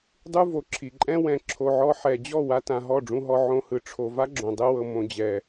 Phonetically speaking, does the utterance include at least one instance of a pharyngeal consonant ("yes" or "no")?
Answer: yes